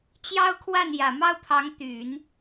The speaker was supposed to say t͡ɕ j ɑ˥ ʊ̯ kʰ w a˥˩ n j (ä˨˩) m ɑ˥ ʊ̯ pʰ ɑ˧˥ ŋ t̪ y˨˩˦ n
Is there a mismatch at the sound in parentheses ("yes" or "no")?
no